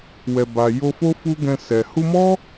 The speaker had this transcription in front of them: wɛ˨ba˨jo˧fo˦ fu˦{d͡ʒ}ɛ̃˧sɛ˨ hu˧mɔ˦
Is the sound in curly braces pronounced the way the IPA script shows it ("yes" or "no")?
no